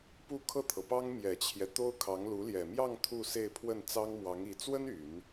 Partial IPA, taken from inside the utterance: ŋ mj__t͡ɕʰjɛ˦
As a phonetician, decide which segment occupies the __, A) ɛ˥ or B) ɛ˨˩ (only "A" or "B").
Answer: B